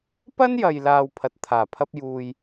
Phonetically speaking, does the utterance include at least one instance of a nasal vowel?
no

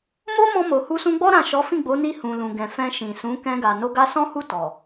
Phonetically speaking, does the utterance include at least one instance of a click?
no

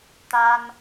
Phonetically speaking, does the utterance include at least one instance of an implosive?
no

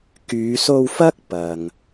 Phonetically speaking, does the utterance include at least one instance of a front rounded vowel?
yes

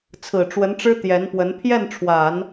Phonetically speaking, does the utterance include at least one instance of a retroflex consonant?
yes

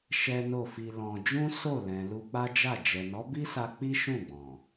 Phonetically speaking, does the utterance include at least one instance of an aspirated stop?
no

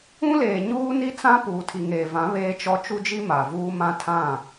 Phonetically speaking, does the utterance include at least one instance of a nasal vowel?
yes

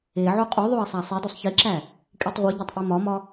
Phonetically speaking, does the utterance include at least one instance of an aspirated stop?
no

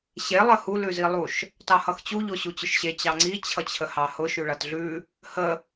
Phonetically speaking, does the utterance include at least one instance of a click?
yes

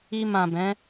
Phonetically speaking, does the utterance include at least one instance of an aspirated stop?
no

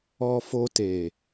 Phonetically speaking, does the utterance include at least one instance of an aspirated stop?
no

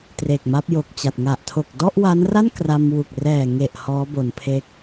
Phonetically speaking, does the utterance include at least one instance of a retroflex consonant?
no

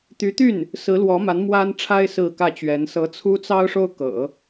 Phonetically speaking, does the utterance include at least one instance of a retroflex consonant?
yes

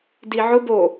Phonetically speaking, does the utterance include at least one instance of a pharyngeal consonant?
yes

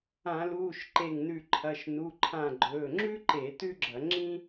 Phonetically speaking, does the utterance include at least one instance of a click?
yes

